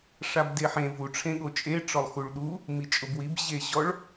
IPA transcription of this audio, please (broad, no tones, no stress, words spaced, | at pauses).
ʂabdeħẽ vu ʈ͡ʂʰẽɠot͡ʃʼe ʈ͡ʂɔlˠxuɭɗu | mit͡ʃʼʊbwib ʑeʑɔɭ